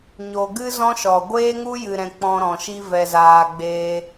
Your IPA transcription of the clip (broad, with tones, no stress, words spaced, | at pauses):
ɲo˨ɡɨ˦ zɔ̃˦ʃɔ˨ ɡʷeː˦ŋu˦jɨ˨ɾɛ̃˨ k͡pɔ̃˧ɾɔ̃˨ʃi˦ vɛ˧zaː˧ɡ͡beː˦